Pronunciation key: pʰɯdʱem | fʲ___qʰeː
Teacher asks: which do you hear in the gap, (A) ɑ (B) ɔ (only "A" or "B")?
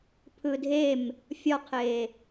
B